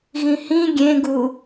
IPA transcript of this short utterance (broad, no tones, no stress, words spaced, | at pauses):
ɣĩhĩ ɡʲẽɡu